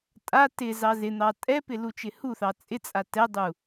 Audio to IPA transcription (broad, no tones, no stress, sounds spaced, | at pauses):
tʼ a t ɪ z ɑ z ɪ n̪ ɑ tʼ ɛ p ɪ l u t͡ʃ ɪ h u θ ɑ t͡sʼ ɪ t͡sʼ a t ɛ dˤ u